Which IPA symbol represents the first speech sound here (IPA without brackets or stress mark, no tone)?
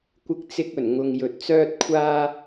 kʷ